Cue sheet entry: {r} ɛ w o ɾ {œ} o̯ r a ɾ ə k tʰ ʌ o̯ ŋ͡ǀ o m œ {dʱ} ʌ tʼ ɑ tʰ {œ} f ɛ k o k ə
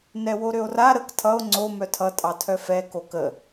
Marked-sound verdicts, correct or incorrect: incorrect: n, incorrect: ø, incorrect: tʰ, correct

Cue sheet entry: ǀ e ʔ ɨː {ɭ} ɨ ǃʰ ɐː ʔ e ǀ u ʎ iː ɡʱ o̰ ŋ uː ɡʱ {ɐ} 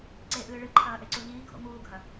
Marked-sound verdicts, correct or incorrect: correct, correct

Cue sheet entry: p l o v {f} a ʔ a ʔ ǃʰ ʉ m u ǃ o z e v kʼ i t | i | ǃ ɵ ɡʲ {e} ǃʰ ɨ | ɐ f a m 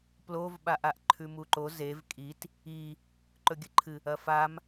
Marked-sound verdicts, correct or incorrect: incorrect: ɓ, incorrect: ɨ

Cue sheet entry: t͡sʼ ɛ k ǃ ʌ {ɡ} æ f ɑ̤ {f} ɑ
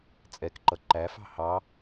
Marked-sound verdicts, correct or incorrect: incorrect: ǃ, incorrect: h

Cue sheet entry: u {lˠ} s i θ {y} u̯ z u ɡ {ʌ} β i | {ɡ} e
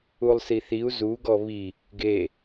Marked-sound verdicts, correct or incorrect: correct, incorrect: i, incorrect: ɔ, correct

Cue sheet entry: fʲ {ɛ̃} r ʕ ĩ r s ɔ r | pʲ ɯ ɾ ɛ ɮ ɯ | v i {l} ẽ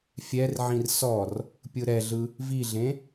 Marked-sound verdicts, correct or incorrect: incorrect: ɛ, incorrect: ɮ

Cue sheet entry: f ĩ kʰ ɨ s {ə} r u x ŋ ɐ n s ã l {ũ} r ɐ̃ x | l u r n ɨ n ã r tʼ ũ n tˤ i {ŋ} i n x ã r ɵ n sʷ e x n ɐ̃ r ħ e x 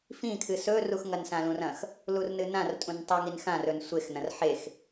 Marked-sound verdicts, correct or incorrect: incorrect: ɵ, correct, correct

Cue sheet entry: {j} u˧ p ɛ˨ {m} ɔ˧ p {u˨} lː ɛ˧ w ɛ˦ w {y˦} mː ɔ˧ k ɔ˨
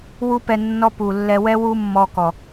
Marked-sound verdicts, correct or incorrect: incorrect: w, incorrect: nː, correct, incorrect: u˦

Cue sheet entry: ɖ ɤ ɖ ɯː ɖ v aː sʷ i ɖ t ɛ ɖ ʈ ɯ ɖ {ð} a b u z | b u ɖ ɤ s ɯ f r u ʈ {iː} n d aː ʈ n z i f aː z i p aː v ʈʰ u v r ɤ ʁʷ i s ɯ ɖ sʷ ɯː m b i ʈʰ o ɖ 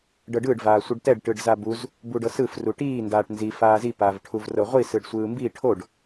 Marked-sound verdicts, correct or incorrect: incorrect: z, correct

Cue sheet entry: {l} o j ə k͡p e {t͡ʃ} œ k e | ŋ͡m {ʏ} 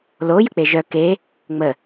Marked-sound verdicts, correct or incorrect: correct, incorrect: ʒ, incorrect: ə

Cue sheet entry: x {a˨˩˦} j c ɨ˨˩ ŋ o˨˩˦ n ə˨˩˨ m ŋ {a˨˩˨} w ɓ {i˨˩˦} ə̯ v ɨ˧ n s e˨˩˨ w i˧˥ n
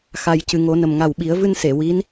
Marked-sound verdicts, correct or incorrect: correct, incorrect: a˨˩, correct

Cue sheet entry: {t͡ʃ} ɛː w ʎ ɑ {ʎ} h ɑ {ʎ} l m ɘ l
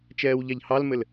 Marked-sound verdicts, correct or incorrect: correct, correct, incorrect: none

